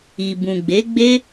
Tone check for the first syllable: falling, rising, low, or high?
low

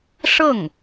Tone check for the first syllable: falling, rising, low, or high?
falling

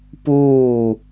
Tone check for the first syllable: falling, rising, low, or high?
falling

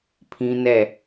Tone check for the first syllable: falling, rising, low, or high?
high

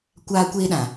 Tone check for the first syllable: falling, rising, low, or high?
high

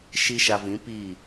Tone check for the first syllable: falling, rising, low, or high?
high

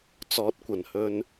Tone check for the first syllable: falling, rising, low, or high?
rising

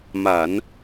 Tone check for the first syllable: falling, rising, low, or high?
low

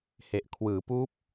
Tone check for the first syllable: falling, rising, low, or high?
low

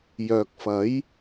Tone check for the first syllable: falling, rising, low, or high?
low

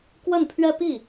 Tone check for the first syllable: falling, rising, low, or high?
falling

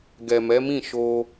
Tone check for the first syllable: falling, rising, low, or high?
low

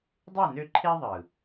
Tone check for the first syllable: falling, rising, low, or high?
falling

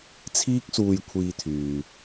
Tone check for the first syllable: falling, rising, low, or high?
high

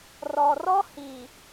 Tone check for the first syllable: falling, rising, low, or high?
low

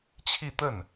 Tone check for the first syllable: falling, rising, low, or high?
falling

